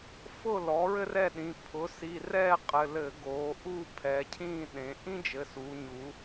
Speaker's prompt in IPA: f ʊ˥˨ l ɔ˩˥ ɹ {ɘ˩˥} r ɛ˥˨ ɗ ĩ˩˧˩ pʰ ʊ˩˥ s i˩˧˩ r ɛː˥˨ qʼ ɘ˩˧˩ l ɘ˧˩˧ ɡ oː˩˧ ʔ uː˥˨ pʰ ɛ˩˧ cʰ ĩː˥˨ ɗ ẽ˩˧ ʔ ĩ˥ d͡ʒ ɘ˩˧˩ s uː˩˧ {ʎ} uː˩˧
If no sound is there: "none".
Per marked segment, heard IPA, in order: ɘ˥, ɲ

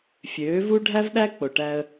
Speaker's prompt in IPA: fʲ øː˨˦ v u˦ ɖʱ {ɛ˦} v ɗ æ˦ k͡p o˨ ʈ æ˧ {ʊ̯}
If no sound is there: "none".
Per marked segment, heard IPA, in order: æ˦, ə̯

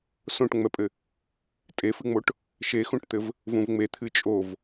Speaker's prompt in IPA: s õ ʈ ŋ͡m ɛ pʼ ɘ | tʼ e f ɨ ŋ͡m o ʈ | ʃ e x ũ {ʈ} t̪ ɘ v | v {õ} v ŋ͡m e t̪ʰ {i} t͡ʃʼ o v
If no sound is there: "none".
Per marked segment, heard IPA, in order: ʈ, ũ, ɨ

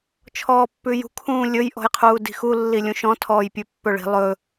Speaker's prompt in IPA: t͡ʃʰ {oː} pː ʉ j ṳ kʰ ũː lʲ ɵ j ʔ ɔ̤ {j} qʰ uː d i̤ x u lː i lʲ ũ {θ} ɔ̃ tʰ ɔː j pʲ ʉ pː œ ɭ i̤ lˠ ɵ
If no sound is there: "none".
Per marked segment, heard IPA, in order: ɔː, j, ʃ

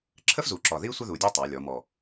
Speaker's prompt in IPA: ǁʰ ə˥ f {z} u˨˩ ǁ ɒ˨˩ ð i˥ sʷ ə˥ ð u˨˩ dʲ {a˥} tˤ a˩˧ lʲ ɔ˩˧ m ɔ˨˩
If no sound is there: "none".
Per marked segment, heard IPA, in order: z, a˥

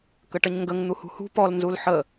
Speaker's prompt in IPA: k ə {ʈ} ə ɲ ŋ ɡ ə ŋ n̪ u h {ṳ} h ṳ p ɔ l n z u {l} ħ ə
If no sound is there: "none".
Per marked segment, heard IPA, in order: ʈ, ṳ, l

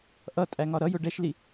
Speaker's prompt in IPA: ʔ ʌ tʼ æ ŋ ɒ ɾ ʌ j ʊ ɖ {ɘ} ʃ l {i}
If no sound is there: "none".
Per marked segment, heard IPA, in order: ɛ, i

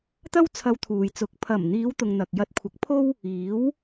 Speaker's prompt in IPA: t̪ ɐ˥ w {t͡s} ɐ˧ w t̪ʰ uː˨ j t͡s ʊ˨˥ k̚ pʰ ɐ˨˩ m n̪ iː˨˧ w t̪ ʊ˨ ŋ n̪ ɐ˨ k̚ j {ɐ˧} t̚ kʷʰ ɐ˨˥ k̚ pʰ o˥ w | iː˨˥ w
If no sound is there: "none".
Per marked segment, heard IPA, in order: t͡sʰ, ɐ˧

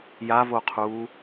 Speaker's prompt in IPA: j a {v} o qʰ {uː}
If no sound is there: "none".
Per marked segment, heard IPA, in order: v, uː

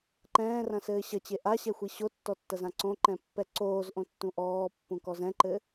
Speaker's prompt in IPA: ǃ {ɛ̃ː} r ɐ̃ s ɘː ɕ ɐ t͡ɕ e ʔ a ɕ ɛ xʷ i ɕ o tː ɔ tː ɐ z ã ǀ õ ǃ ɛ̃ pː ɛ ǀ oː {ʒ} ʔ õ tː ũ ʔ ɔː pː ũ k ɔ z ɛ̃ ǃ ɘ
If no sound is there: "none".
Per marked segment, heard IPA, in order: ɛ̃ː, z

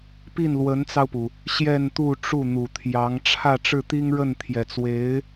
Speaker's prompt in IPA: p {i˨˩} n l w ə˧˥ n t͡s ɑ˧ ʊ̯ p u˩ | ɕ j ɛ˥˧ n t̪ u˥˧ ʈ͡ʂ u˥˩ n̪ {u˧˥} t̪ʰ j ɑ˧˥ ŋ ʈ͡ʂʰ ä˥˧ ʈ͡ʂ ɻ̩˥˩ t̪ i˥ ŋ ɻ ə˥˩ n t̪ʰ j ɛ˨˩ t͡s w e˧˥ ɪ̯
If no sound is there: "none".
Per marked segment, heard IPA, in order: i˥˩, u˨˩

